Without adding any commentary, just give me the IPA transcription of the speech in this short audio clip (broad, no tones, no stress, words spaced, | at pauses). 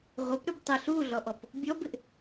ʁʷɪp ɾʏbtˤə ɬuɮɔʔɔp | bʲɔbɪʔ